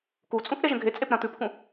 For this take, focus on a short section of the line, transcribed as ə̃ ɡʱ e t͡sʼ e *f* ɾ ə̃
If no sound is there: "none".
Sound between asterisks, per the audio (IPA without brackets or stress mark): p